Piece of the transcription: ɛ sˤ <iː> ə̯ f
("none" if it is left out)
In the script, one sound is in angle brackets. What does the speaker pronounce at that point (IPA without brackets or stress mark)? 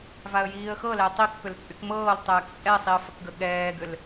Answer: i